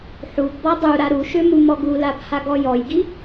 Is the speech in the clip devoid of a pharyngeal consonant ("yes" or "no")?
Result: no